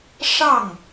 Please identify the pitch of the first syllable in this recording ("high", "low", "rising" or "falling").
falling